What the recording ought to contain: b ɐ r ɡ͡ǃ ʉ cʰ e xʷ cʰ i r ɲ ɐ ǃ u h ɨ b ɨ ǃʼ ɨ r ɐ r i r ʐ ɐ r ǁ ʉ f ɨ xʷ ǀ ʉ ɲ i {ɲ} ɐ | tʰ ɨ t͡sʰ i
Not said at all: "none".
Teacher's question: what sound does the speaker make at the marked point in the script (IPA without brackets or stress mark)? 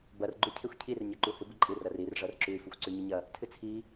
ɲ